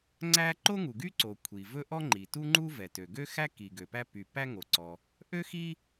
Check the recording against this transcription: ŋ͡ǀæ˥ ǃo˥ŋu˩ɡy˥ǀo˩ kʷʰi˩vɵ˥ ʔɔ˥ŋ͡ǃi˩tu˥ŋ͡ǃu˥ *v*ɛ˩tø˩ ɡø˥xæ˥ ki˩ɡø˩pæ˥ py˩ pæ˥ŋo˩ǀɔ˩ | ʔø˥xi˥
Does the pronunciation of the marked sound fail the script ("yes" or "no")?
no